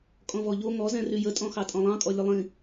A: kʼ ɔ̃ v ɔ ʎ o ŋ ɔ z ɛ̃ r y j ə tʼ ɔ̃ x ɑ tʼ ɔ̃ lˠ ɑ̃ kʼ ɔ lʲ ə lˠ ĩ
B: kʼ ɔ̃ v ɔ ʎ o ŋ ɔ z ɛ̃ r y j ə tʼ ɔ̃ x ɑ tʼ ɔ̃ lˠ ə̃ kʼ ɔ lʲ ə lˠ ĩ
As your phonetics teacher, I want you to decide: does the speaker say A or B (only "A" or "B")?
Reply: A